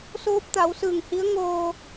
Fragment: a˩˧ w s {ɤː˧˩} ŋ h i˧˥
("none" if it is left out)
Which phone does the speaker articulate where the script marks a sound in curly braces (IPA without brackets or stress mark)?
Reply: ɯː˧˩